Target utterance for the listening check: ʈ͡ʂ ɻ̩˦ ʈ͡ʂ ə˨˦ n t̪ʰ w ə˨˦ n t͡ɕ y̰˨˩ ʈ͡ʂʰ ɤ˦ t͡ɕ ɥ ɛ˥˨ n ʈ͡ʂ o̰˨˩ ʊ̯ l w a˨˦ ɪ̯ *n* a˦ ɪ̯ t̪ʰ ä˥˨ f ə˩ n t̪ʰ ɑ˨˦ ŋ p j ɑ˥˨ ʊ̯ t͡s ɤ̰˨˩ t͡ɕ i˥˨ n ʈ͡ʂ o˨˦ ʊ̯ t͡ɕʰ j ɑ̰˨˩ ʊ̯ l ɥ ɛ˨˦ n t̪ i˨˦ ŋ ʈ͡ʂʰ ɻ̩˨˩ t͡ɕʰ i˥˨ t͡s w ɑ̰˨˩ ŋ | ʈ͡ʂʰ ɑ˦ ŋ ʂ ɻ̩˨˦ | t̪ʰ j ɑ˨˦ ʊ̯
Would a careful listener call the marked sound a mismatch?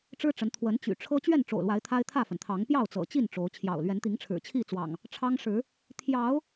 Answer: yes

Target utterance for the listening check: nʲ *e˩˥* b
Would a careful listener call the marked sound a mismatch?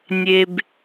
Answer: yes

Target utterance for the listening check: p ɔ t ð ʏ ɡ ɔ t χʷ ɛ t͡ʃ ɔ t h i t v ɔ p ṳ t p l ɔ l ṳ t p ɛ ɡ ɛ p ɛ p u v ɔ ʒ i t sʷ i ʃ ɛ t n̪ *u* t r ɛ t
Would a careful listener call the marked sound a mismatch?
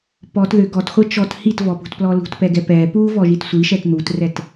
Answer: no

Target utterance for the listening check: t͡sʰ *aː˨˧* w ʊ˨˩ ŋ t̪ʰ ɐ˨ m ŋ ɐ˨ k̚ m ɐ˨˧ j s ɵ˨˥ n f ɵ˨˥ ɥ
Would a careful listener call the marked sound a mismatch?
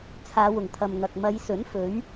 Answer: no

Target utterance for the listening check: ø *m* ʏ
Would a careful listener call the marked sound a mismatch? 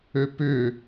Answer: yes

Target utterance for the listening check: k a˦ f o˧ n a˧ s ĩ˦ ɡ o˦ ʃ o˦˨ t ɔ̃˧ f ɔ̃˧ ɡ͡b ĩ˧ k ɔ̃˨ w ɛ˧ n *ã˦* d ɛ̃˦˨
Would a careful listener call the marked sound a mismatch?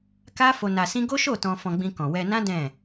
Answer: no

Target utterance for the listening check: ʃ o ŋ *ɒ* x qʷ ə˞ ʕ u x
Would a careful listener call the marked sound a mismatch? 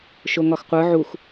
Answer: no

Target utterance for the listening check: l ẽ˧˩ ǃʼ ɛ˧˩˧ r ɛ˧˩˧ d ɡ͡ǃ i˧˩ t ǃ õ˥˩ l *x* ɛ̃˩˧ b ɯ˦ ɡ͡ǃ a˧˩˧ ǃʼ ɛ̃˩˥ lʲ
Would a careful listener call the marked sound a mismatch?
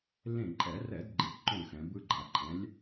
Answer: no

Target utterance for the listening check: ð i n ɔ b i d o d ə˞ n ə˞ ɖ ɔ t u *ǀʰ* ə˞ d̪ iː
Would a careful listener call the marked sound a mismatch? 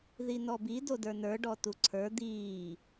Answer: no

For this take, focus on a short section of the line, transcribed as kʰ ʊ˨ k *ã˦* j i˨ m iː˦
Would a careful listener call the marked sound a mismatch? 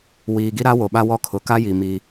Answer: yes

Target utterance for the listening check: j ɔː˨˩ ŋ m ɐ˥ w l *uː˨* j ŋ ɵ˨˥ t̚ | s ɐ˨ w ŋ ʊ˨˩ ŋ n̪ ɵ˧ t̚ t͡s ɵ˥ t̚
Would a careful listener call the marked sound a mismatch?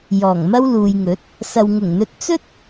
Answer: no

